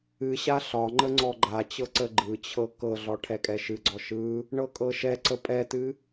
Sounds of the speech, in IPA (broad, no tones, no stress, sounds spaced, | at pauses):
ɨ ɕ a ɬ ɒ ŋ͡ǃ ə ŋ͡ǀ ɔ ɡ͡ǃ a t͡ɕ ɤ ǀ ə ɡ͡ǃ ɯ t͡ɕʰ ɤ k ɤ ɮ ɔ ʈʰ ɛ kʼ ɛ ʃ ɨ ɡ͡ǀ ɔ ʃ ɯ | ɳ ɤ kʼ ɤ ʃ ɛ ǀ ə pʼ ɛ t ɨ